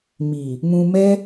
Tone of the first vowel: low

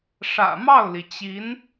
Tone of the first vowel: low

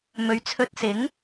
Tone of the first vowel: rising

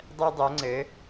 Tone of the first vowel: high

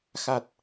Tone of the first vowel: low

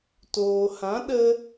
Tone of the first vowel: low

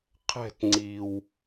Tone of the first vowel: falling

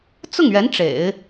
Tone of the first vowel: falling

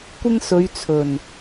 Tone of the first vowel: high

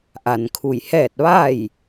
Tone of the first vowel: low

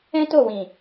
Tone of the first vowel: high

